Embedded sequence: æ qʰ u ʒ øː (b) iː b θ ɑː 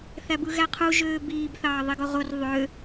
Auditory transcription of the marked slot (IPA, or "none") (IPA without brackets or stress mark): b